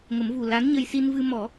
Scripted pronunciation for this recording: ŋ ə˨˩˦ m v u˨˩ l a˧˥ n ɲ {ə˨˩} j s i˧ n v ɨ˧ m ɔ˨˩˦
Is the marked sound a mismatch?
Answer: yes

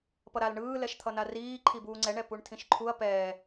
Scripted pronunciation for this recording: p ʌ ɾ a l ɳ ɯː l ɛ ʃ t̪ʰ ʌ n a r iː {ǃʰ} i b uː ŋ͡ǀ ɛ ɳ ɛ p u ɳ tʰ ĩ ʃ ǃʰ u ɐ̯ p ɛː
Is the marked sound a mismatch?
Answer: no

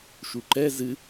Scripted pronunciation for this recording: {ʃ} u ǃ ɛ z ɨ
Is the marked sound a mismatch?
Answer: no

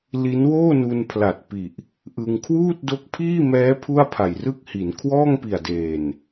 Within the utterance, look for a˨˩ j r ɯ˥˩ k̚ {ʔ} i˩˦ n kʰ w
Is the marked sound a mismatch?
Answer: yes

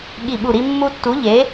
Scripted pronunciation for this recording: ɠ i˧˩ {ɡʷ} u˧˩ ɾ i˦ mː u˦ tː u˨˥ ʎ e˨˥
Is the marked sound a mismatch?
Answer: yes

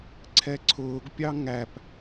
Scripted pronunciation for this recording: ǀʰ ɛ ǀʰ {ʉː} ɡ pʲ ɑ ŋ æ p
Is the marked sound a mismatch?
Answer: yes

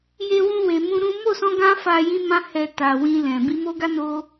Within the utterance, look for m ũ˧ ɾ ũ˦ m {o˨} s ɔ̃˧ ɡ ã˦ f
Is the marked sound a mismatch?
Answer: yes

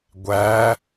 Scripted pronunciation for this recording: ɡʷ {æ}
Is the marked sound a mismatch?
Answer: no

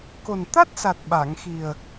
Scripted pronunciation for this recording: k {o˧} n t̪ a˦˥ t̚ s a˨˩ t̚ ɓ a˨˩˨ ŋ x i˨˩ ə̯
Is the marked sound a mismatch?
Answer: yes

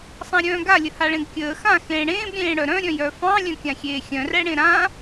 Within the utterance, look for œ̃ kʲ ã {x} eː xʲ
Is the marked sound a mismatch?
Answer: yes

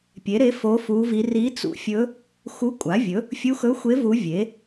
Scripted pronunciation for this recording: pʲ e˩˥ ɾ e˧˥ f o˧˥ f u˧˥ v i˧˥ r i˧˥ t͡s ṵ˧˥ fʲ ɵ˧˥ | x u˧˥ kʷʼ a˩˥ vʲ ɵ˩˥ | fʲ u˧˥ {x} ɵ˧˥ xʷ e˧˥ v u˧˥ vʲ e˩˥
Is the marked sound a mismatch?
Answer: no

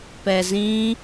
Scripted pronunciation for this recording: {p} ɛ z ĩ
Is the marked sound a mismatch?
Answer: no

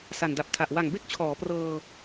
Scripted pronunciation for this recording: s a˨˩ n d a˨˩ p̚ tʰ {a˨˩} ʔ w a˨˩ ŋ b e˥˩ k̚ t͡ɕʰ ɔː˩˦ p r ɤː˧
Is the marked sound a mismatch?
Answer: no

